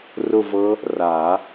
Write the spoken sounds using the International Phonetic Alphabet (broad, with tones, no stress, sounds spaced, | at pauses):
r ʊ˥˧ v ɤ˦˥ | r a˨˩˦